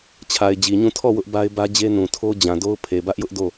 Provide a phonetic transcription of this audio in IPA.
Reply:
t͡ɕʰ a˨ ɪ̯ d͡ʑ i˨ ɲ ũ˦˨ tʰ ɔ˦˨ w ʊ˦ ʔ b a˦ ɪ̯ b ä˦ d͡ʑ e˦ n ũ˨ tʰ o˦ d͡ʑ ã˨ d o˦ ʊ̯ pʰ e˨ b ä˦ ʔ j ʊ˦ ʔ d o˦˨

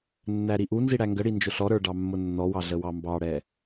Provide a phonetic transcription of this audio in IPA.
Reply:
nː æ ɾ i ʔ u n z i ɽ æ ŋ ɡ ə ɽ i n d͡ʒ ʊ ɬ ɔ ɾ ə˞ ɖ ɑ mː ʊ nː ɔ w ɑ ɮ ə w ɑ m b ɑ ɽ ɛ

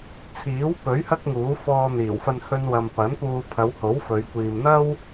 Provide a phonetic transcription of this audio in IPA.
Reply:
t͡sʰ iː˨˥ w p ɵ˨˥ ɥ h ɐ˥ k̚ ŋ uː˨˥ f ɔː˧ n̪ iː˨˩ w f ɐ˧ n h ɵ˧ n w ɐ˧ m p ɐ˨˥ n p uː˧ pʰ ɐ˨˧ w h o˨˥ w f ɵ˨˧ ɥ kʷ iː˨ m n̪ ɐ˥ w

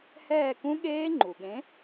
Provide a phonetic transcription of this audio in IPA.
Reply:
h ɛː˦˨ k ũ˦˥ ɠ eː˦˥ ŋ͡ǃ u˩ ɠ ẽ˨˥

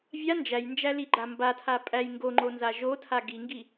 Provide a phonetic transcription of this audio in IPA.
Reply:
vʲ a n d͡ʒ æ j n d͡ʒ æ l i ɡ͡ǃ a m b a tʰ a pʼ æ j ŋ ɡ o ŋ͡ǃ o n z a ʒ o tʰ a ɡ i ŋ ɡ i

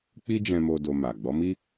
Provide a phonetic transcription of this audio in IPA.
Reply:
k͡p i˦ d͡ʒ ɛ̃˧ m o˧ d o˧ m a˨ ɡ͡b ɔ˨˦ m i˦

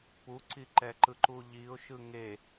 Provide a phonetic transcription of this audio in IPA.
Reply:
p u ǀ i ǃ ɛ ǃ ɯ ǃ u ʎ i ʊ̯ ʃ ɯ ŋ e

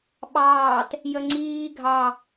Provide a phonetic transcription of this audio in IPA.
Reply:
ɓ ɑː t | j ə ŋ͡ǀ iː ɡʱ ɑ

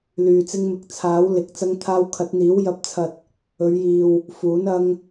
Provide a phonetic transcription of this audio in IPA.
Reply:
l yː˨ t͡s ɪ˧ ŋ m ɪ˨ k̚ t͡sʰ aː˨˥ w l ɪ˨ k̚ t͡s ɐ˧ ŋ t̪ʰ aː˧ w kʰ ɐ˨˥ t̚ n̪ iː˨˥ w j ɐ˨ p̚ t͡sʰ ɐ˨ t̚ | ɵ˨˧ ɥ j iː˨ w | f uː˨˥ n ɐ˧ ŋ

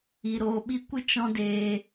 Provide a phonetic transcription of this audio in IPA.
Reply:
i˨ ɾ oː˨ ɓ i˧ kʷ ɨ˦ t͡ʃ ɔ̃˦ d eː˧

